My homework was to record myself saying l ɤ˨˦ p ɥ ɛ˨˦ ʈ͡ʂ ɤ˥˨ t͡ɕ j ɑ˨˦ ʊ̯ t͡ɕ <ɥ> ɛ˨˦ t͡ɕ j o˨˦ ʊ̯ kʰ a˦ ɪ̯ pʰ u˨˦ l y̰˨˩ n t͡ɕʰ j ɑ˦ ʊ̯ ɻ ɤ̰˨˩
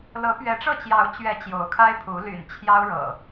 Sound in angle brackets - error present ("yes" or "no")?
no